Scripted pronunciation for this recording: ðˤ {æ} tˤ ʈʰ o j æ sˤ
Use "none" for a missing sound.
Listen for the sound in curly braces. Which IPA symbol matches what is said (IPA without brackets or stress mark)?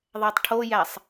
æ